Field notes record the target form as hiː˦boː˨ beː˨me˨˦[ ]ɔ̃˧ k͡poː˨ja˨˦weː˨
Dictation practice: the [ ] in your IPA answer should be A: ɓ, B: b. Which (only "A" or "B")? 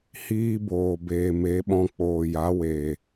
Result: A